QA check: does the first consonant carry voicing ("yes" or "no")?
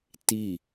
no